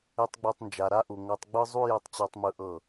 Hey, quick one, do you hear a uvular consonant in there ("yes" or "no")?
no